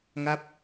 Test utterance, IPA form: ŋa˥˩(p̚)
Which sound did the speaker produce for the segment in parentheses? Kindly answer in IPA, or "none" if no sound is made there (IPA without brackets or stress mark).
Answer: p̚